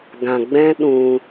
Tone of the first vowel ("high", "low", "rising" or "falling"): low